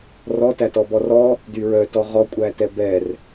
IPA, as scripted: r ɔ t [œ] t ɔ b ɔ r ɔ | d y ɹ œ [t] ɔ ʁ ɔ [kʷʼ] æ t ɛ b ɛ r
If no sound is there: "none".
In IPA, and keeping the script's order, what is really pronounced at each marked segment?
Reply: æ, t, kʷʼ

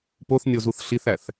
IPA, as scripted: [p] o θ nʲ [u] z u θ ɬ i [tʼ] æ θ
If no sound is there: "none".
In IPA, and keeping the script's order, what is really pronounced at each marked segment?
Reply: p, o, θ

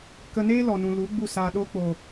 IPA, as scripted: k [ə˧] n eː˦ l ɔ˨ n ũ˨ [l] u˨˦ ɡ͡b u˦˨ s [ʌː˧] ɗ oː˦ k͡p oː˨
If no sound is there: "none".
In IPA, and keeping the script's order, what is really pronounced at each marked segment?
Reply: ə˧, l, aː˧

